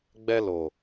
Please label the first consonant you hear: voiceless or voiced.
voiced